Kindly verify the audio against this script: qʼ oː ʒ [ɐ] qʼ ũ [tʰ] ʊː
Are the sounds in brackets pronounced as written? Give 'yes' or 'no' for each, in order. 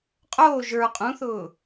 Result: no, no

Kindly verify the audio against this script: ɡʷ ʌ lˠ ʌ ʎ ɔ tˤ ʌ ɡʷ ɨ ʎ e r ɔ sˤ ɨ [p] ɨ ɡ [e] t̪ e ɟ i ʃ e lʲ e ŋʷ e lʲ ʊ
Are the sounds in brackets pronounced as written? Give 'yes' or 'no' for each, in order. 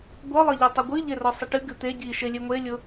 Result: no, no

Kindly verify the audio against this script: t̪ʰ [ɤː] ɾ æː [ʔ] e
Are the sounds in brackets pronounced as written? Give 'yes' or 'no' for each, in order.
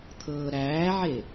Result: yes, no

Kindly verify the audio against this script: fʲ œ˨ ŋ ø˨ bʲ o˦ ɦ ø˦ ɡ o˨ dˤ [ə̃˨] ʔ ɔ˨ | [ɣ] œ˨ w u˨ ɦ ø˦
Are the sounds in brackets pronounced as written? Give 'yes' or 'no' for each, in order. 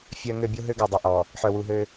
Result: no, no

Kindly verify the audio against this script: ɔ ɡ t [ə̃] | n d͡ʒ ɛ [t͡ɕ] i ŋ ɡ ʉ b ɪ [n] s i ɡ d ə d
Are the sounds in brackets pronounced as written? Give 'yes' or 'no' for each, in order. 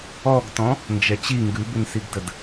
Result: no, yes, yes

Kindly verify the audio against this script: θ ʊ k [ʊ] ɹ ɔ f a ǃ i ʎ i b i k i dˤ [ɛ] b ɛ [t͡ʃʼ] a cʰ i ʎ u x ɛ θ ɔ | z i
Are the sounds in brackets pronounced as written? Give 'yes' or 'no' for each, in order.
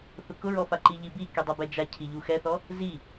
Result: yes, yes, no

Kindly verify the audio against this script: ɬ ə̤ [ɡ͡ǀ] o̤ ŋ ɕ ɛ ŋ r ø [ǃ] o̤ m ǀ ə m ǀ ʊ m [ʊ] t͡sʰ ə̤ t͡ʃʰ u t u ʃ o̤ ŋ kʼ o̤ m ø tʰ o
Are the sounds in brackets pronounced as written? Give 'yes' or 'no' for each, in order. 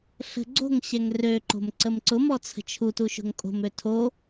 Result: yes, yes, no

